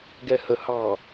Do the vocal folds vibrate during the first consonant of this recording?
yes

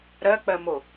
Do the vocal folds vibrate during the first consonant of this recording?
yes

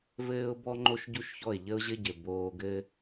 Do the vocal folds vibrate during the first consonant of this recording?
yes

